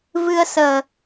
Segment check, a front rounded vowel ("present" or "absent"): absent